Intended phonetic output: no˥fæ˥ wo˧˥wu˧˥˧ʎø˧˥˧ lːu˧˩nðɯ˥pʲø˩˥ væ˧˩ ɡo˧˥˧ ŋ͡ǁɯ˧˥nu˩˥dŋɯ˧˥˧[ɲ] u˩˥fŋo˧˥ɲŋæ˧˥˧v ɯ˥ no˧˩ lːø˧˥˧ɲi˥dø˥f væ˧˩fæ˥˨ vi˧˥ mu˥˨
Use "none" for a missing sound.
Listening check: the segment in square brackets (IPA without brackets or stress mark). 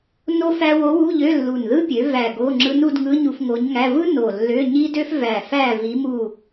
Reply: ɲ